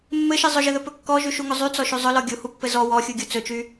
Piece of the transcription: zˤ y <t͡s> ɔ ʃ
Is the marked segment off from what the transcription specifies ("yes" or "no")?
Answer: no